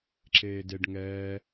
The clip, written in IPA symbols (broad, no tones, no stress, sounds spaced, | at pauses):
ǁ eː d e ɖ ŋ ɛː